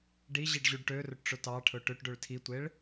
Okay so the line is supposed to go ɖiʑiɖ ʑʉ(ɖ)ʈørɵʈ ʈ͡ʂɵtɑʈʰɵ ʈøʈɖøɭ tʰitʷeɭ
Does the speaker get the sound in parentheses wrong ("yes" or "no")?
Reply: no